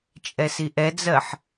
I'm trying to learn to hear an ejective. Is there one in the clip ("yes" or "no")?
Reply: yes